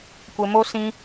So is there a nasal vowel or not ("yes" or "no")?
yes